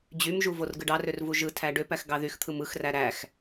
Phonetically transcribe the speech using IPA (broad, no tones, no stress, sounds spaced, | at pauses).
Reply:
d͡ʑ y m ʒ u v o r ɡ ɯ ɖ ɑ r ø r v u ʒ ɯ tʰ æ ɖ ø p æ x ɡ ɑ ð y x t̪ʰ ɯ m ɯ x r æ ɾ æ x